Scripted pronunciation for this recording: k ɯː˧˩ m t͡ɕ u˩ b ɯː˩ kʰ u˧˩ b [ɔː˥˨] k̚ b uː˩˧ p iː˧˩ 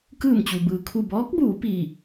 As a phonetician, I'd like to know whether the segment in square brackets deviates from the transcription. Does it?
yes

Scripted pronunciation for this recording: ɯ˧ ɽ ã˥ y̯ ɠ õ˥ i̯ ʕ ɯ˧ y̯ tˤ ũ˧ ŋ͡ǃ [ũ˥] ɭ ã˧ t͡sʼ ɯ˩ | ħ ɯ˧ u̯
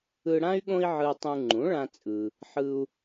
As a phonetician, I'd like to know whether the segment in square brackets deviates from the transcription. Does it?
yes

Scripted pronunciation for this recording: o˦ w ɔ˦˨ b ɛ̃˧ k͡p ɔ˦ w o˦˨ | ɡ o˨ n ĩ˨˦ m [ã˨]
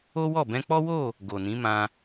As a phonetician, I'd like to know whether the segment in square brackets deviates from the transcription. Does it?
yes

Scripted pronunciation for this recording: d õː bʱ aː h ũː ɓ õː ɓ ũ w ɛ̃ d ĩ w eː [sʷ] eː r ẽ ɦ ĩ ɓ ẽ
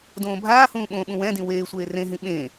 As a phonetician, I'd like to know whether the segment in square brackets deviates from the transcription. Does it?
no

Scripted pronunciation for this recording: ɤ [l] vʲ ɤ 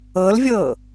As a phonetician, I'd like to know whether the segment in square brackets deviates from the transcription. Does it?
no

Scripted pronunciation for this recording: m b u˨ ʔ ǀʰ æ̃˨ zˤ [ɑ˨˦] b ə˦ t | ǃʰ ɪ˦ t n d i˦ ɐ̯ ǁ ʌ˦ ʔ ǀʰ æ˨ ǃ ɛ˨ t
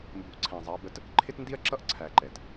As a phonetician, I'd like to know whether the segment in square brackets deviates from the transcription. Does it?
no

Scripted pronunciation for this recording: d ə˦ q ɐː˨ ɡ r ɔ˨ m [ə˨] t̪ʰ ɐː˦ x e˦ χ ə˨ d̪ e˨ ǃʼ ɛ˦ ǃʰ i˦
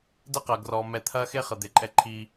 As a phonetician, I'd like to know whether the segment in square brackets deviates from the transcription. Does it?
yes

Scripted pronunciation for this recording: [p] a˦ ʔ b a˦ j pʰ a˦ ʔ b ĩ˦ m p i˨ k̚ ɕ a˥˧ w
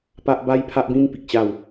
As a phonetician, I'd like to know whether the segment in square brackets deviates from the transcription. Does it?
no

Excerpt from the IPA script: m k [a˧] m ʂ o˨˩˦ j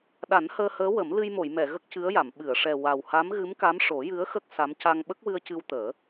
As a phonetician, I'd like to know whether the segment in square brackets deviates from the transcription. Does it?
yes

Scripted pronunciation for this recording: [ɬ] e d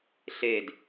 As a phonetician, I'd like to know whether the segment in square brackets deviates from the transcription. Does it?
no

